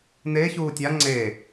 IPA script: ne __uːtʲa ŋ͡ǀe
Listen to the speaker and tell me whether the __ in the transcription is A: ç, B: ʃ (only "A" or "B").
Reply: A